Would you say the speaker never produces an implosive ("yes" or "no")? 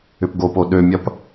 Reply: no